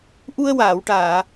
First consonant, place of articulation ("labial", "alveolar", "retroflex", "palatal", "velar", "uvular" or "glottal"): glottal